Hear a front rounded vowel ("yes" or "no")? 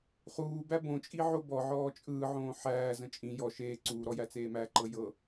no